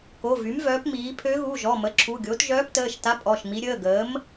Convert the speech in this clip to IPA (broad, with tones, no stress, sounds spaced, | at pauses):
k o˩˧˩ v y˩˥ m v œː˩˥ p m iː˩˥ pʰ ø˧˥ ɣ u˩˧˩ ʒ ɔ˩˧˩ m ə˩˥ ǁʰ u˩˧˩ ɡʲ o˩˥ t ʒ œː˧˥ p t əː˩˧˩ ʃ t a˧˥ pʼ ɔ˩˧˩ ʃ m i˧˥ ɾʲ əː˩˧˩ ɡ əː˩˥ m